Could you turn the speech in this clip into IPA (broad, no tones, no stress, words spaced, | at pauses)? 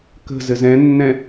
kə̤zɘ zɛ̃nːɛ̃